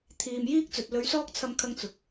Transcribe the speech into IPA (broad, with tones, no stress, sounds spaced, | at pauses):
t̪ʰ iː˨ m j iː˥ k̚ t͡s ɵ˨ t̚ l ɵ˨˥ ɥ s ɔː˥ k̚ t͡sʰ ɐ˧ m kʰ ɐ˥ ŋ t͡s ʊ˨ k̚